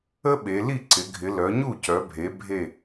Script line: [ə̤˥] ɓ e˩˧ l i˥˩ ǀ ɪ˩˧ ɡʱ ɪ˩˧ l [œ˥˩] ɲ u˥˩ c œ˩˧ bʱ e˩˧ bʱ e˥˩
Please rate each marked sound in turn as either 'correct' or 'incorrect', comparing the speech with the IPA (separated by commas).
incorrect, incorrect